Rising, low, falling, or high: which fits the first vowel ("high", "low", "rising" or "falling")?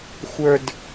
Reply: low